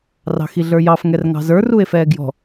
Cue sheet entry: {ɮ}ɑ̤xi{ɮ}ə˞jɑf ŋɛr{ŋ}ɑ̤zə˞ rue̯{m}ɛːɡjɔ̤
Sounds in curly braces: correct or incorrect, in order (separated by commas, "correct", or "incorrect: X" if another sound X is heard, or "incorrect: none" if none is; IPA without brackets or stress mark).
incorrect: r, correct, correct, incorrect: f